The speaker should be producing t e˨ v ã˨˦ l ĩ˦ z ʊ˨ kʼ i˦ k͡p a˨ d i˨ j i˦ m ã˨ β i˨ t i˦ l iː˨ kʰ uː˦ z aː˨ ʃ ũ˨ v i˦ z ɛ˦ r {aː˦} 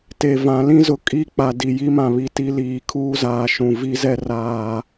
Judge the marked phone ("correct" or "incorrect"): correct